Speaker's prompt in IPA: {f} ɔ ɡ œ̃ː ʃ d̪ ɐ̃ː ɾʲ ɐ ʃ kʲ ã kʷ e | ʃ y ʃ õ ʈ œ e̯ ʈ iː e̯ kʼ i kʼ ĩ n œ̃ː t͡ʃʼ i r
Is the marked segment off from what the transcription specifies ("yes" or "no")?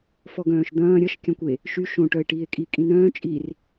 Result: no